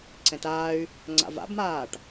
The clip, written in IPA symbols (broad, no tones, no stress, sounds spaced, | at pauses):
ǀ ɛ̃ t aː y̯ | ŋ͡ǀ a̰ v a̰ b m aː ʈ